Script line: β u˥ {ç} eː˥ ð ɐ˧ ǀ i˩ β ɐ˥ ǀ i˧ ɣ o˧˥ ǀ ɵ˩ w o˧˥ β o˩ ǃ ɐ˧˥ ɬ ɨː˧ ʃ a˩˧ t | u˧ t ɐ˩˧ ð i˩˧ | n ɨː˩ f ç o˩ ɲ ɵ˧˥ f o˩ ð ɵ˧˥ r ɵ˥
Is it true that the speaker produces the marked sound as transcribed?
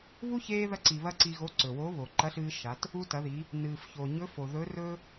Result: yes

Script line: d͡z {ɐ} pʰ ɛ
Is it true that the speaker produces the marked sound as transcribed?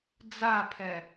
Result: no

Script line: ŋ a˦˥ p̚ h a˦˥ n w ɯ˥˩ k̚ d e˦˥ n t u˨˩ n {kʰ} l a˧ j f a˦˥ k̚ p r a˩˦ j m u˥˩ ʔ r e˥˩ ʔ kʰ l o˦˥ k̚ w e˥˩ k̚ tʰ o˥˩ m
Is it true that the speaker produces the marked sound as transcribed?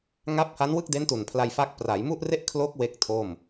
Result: no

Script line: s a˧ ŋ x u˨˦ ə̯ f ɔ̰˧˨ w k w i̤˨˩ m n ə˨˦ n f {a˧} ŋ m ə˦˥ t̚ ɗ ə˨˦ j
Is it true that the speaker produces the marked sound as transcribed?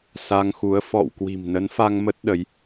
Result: yes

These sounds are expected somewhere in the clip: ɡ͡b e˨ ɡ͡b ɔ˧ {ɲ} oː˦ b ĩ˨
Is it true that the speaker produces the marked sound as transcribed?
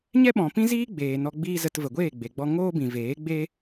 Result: no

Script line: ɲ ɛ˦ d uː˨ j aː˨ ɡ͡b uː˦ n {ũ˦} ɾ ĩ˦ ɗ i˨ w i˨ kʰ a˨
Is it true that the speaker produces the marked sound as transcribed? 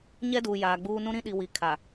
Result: yes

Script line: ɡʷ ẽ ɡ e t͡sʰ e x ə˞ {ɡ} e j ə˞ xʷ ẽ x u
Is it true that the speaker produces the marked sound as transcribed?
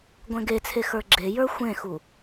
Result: no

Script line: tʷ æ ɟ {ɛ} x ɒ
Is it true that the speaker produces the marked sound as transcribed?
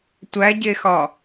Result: no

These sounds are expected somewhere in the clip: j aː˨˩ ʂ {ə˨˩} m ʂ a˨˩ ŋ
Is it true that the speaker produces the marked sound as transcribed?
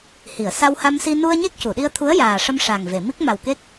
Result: no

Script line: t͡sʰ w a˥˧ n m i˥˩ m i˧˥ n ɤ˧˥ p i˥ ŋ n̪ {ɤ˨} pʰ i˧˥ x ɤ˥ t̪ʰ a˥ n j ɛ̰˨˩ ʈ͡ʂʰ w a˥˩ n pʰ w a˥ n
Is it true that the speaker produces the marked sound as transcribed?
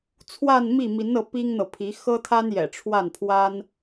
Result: yes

